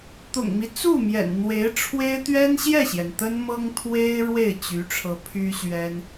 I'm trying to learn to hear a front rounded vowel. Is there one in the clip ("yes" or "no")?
yes